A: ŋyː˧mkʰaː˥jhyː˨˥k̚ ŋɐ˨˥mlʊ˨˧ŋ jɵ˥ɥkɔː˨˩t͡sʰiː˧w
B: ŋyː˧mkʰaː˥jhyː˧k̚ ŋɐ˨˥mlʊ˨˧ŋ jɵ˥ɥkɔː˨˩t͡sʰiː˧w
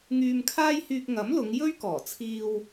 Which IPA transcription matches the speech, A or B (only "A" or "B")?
B